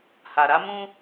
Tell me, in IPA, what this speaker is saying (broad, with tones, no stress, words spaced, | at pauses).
ha˨ɾa˦ mũ˦